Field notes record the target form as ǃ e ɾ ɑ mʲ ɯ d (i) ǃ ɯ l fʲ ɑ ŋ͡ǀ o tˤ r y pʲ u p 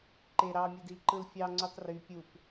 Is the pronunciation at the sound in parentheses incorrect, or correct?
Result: correct